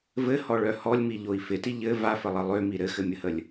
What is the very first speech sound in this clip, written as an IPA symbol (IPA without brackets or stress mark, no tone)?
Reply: v